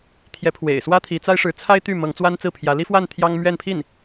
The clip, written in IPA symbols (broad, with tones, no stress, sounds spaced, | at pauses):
t̪ʰ j ɛ˧˥ pʰ w ḛ˨˩ ɪ̯ s w ä˥ t̪ʰ i˧˥ t͡s a˥ ɪ̯ ʂ ɻ̩˧˥ t͡sʰ a˥ ɪ̯ t̪ y˥˩ m ɤ˧˥ ŋ t͡s w a˥ n t͡s ɹ̩˥˩ pʰ j ä˧˥ l i˥ f w a˥˩ n t̪ʰ j ɑ˥ ŋ m ɥ ɛ˥˧ n pʰ i˥˩ n